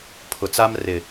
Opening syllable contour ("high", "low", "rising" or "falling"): low